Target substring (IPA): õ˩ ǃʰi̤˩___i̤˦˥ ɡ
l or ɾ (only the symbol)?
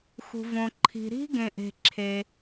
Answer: ɾ